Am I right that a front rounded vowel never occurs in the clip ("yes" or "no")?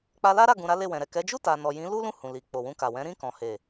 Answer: yes